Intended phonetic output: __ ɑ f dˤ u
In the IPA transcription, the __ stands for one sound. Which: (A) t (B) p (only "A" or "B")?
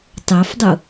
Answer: A